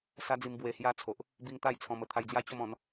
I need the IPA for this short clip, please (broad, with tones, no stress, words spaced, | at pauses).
sa˦d͡zi˧m bwe˧hja˦ t͡sʰo˨ʔ | bi˧ŋ t̪a˥˧jt͡sʰɔ̃˧mə˧ t̪ʰa˧jd͡zja˦t͡ɕo˥˧mɔ̃˨˦n